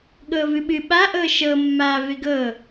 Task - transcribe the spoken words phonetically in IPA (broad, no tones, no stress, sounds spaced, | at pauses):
ɠ ɤː v ɨ ɓ ɨ ɓ a ʔ ɤː ʃ ɤ mː aː v e ɡ ɤ